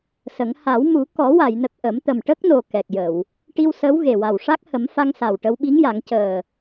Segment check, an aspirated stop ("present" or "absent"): absent